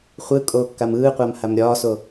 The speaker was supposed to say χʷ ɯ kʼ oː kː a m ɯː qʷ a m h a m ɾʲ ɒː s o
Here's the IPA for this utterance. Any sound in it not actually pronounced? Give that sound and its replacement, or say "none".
none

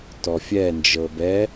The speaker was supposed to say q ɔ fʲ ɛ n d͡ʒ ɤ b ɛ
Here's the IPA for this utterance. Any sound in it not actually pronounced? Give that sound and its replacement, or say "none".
q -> t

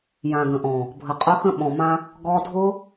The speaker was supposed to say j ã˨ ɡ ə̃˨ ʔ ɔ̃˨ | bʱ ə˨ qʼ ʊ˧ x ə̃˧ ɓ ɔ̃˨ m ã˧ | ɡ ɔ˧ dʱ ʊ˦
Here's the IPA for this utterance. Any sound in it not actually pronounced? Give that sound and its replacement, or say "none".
none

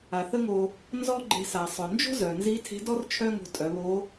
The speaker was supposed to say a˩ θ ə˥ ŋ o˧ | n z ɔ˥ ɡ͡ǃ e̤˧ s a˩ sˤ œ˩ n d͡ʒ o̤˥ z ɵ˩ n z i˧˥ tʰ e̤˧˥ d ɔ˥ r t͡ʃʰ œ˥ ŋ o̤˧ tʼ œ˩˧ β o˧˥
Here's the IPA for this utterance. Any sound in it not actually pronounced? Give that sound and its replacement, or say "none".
ɵ˩ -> œ˩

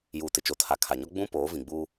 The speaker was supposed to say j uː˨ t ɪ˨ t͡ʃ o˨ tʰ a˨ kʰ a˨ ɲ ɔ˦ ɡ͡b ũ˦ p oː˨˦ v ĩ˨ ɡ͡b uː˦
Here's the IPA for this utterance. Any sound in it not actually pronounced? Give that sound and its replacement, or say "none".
none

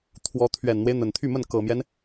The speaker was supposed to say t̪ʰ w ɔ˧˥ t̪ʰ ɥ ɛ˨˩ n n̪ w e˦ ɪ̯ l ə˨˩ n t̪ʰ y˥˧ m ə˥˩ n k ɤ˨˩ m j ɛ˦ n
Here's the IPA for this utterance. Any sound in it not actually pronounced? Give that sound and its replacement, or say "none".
l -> n̪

